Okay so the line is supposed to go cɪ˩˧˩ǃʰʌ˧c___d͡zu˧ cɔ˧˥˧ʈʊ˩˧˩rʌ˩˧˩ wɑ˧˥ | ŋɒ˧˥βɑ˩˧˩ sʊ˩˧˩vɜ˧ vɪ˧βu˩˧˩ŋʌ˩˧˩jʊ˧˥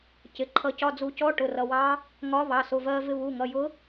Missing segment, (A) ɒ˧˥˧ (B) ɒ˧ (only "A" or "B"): A